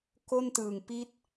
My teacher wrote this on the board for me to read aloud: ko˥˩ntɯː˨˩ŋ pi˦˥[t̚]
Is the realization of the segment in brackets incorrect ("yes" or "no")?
no